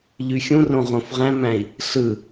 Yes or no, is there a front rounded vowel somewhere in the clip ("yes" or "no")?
yes